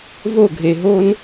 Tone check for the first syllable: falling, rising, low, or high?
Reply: falling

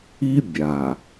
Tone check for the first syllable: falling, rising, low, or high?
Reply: high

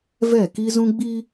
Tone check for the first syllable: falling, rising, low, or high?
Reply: falling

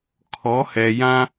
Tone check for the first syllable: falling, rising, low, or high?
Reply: rising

